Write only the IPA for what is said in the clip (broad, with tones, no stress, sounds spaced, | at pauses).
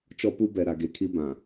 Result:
t͡ʃ ɔ˦ p u˦ b ɛ˨ ɾ a˨ ɡ e˨˦ kʰ i˦ b ã˨